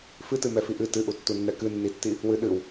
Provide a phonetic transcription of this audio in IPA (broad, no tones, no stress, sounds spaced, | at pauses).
f ɨ t ɨ m ɛ f i ʔ ɨ t ɨ ʔ u tː u nː ɛ k ɨ nː i tː i | w ɨ ɗ ɨ w